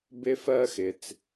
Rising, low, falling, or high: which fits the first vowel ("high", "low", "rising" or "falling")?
high